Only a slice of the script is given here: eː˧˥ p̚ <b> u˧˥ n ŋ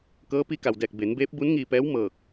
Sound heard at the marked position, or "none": b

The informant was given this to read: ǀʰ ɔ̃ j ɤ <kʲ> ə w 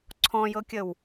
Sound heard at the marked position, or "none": kʲ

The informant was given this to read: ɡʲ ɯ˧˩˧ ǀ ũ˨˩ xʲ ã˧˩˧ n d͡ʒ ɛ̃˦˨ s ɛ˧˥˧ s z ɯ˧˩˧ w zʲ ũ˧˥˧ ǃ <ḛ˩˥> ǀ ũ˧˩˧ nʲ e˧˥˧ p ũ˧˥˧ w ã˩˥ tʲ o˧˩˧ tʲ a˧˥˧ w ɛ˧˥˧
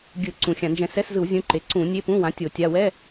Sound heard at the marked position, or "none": e˩˥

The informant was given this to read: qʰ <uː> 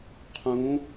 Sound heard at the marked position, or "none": ũː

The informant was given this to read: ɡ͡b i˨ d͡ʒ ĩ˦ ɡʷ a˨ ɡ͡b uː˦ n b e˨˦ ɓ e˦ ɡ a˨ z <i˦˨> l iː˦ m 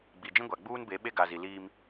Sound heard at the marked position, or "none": i˨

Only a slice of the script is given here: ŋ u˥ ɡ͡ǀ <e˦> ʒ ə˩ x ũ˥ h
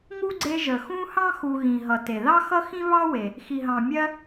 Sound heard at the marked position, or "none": e˦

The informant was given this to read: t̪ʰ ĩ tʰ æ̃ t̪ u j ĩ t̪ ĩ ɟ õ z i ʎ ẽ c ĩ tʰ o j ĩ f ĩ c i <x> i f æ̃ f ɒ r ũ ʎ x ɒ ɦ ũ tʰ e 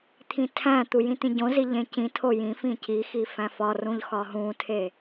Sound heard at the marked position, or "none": x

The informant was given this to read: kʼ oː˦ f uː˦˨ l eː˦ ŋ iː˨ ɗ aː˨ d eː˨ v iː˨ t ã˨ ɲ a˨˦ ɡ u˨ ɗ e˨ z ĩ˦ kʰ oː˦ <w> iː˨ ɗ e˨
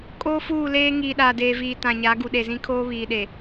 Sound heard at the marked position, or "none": β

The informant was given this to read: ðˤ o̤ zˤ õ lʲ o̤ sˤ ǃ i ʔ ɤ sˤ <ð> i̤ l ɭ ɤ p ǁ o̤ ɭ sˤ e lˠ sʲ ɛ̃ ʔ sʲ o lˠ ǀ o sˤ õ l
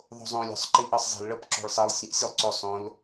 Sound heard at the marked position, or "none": zˤ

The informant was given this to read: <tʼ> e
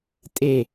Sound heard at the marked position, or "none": tʼ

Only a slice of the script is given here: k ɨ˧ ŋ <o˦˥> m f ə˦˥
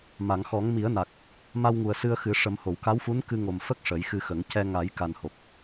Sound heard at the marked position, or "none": o˨˩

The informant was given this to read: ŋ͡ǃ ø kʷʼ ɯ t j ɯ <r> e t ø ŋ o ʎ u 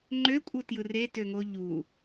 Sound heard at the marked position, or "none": r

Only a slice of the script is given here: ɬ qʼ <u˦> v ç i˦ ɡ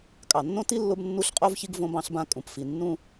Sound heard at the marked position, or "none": o˦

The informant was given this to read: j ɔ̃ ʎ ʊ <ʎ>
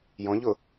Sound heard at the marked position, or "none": none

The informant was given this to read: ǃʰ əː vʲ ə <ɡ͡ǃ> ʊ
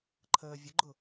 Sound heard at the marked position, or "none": ɡ͡ǃ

